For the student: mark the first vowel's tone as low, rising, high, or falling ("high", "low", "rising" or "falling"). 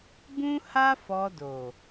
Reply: high